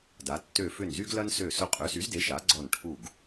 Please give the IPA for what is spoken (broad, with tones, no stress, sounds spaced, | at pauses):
d a˩˧ tː ø˧˩ f ʏ˧˩ n z y˦ ɡ l ɐ˦ n s ø˧˩ s ʊ˦ qʼ ø˩˥ s y˩˥ z d e˩˥ ʃ a˩˥ ɡ͡ǀ ɔ˧˩ n ʈʰ u˧˩ ɡ